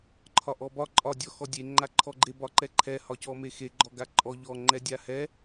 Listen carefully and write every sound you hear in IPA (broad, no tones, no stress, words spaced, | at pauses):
ǃʰɒʔɔbɒ ǃʼɒ dʲɔxɔdʲe ŋ͡ǃaǃʰɔɡ͡ǃe bɒǃɛǃʰɛ hɒcɔmexe ɡ͡ǃɔɡaǃʼɔ ʎɔ ŋ͡ǃɛdʲahɛ